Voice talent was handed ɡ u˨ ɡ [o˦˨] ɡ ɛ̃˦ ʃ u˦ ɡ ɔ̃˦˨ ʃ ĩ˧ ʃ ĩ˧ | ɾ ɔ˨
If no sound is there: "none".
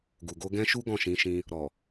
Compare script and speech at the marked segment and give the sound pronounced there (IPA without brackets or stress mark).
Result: o˧